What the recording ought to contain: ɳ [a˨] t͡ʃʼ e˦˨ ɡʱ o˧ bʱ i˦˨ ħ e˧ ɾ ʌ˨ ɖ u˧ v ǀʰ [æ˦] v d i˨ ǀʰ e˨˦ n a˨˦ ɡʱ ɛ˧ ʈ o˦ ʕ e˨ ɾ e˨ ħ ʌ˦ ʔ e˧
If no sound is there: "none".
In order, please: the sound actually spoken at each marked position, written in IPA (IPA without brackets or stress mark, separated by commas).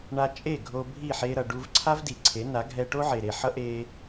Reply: a˧, a˦